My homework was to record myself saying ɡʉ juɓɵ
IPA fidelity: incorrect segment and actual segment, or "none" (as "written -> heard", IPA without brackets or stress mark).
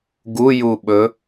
ʉ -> u